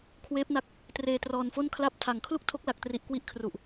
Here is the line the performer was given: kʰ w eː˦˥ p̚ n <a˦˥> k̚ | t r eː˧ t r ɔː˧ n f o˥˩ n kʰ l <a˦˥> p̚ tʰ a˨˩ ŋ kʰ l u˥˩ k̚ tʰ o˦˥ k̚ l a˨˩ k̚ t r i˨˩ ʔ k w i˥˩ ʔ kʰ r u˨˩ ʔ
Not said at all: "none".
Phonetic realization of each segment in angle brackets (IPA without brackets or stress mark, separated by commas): a˦˥, a˥˩